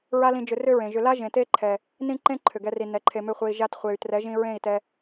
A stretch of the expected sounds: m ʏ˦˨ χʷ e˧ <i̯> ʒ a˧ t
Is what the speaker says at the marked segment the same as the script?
yes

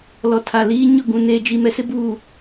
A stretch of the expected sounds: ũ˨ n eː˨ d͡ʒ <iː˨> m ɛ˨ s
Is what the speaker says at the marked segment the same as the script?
no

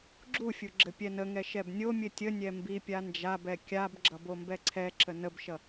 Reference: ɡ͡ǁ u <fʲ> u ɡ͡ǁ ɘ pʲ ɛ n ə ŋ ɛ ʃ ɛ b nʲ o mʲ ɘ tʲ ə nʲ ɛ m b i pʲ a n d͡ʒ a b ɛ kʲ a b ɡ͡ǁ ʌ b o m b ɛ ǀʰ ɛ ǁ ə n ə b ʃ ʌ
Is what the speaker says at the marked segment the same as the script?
yes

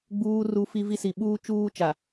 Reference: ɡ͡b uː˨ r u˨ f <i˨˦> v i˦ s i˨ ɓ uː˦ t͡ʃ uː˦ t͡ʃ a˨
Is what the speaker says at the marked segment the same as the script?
no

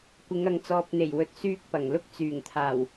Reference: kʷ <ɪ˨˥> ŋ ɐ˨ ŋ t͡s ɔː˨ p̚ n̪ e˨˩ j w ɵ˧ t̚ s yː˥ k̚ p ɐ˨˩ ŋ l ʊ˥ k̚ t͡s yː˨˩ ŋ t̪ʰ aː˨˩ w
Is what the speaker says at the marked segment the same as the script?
no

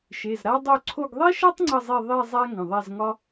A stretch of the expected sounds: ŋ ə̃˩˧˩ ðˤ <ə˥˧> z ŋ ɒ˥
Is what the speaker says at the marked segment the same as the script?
no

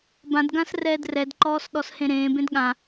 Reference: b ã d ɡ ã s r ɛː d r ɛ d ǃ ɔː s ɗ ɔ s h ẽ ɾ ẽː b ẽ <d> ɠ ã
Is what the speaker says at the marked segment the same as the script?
yes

